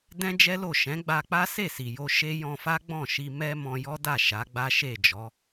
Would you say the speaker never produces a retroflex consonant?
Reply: yes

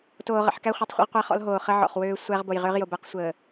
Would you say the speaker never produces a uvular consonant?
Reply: no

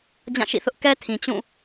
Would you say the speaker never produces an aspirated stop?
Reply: no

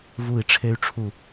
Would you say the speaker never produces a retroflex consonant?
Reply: no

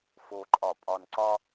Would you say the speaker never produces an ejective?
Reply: no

